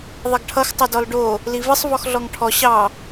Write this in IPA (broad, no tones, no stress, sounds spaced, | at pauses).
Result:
ðˤ ʌ ɡ ʈʰ ʌ x tˤ ʌ d ɔ l ɖ o | l i v ɨ sˤ v ɔ x ɮ ɔ ŋ ʈʰ ɔ ɕ ɑ